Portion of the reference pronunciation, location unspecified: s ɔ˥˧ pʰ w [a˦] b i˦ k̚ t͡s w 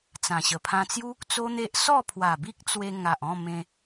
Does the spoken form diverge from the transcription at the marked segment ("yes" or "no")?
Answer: yes